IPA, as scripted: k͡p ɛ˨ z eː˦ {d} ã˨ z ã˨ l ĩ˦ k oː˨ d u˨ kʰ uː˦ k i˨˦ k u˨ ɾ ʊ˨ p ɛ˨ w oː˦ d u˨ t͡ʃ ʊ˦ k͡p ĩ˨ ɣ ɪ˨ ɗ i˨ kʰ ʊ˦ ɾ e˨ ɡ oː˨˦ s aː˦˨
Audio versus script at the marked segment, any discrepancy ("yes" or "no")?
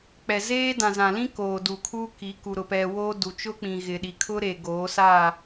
no